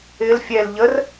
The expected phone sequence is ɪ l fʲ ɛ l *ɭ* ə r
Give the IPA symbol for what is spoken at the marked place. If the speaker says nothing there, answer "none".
ʎ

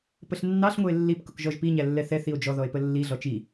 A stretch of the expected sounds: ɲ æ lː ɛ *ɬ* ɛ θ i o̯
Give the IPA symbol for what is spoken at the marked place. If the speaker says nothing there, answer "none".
θ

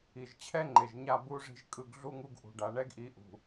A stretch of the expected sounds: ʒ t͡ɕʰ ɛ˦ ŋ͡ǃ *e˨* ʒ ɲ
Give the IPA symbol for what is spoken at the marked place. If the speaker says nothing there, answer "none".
e˨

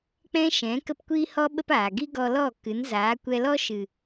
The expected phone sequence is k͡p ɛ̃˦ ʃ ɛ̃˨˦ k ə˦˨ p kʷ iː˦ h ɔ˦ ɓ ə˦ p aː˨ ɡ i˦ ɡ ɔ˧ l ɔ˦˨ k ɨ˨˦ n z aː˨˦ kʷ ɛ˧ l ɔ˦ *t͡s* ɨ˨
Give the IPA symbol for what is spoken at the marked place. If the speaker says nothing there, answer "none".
ʃ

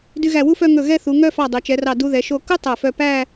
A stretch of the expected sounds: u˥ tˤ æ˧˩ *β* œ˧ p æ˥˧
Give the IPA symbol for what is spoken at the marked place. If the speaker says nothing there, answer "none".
f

